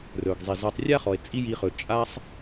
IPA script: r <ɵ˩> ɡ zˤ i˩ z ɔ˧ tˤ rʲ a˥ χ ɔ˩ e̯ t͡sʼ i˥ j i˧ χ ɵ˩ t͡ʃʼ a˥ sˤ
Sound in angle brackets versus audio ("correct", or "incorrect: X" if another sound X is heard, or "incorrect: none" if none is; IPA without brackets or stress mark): correct